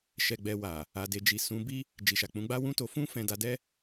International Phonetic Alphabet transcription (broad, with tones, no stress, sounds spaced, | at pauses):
ʃ ɛ˧ ɡ͡b ɛ˧ w a˨ | a˨ d e˨ d͡ʒ i˨ s ũ˨˦ b i˦ | d͡ʒ i˨ ʃ a˨ k͡p ũ˨˦ ɡ͡b a˦ w ũ˦ t o˧ f ũ˦ f ɛ̃˧ d a˧ d ɛ˦